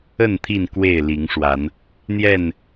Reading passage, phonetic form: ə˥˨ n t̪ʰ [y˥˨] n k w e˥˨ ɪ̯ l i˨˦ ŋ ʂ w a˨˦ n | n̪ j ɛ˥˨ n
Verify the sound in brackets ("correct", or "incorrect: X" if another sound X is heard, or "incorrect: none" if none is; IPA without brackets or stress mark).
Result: incorrect: i˥˨